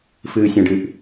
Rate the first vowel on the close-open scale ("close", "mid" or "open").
close